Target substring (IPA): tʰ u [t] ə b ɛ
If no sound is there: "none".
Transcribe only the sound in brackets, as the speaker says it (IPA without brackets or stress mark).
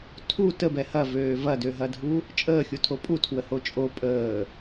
t